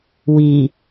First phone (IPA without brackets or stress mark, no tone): w